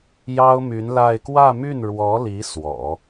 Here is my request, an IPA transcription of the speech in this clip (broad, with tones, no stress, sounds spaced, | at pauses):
j ɑ˥ ʊ̯ m y˧˥ n l a˥˧ ɪ̯ k w ä˥˧ m y˥˩ n ɻ w ɔ˧˥ l i˧˥ s w ɔ̰˨˩˦